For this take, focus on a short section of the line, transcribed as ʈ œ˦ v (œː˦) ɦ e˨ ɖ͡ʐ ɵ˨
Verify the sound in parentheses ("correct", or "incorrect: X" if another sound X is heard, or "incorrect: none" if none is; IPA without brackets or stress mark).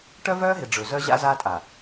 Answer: correct